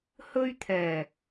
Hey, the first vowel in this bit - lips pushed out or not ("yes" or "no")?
yes